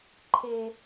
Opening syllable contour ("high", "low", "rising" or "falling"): high